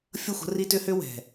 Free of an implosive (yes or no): yes